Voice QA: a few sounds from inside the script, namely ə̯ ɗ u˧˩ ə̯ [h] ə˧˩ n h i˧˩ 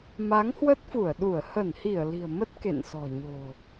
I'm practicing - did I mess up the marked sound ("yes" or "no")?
no